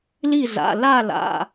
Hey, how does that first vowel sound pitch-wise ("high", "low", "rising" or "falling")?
falling